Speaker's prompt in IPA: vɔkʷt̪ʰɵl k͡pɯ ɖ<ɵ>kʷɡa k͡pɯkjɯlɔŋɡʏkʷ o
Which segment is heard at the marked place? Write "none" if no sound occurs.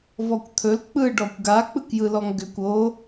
ɔ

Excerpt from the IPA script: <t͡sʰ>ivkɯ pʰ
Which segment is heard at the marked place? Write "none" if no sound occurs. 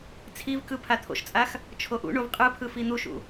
t͡sʰ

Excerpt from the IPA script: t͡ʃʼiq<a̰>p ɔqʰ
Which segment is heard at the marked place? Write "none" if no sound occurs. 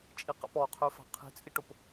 a̰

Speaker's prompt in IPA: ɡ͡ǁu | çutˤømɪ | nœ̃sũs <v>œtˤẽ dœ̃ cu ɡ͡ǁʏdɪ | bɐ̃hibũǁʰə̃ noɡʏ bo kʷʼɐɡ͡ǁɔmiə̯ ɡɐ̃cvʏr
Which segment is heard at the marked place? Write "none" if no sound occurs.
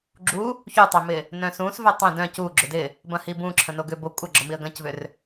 v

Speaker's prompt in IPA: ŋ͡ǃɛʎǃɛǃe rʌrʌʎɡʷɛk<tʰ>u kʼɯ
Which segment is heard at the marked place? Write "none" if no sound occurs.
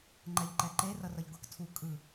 tʰ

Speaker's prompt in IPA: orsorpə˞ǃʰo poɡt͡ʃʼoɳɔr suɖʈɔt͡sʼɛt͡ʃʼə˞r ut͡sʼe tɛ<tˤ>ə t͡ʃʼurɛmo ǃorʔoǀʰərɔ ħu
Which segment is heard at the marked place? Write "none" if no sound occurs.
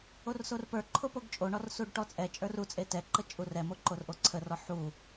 ǃ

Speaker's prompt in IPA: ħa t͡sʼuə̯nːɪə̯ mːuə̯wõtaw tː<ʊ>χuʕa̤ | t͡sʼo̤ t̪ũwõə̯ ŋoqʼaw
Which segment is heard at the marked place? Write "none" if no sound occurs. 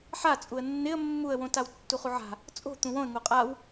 u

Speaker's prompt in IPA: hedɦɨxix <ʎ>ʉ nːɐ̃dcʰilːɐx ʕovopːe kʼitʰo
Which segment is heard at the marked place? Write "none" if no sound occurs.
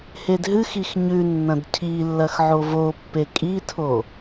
ɲ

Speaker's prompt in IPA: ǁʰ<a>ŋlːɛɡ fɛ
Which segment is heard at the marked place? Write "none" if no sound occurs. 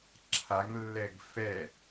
a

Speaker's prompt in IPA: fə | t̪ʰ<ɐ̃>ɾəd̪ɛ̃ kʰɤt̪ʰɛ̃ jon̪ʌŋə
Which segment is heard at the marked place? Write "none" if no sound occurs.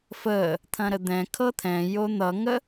ɐ̃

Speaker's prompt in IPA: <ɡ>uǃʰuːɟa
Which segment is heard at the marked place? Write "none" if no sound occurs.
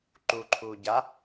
ǃ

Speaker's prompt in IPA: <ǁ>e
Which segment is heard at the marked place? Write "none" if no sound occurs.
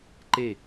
ǃ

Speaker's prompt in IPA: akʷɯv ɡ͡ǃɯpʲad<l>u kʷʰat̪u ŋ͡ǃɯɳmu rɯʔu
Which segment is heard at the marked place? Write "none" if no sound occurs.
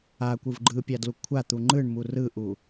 l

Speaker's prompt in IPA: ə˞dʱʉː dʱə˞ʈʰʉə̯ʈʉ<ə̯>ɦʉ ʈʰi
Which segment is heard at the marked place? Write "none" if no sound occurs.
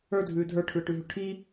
none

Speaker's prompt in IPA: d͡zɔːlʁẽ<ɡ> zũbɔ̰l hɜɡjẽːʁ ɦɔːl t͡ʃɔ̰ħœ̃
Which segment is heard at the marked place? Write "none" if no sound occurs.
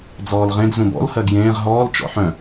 ɡ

